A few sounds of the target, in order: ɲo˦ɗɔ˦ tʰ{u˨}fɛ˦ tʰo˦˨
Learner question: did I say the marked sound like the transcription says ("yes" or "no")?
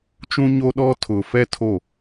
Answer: no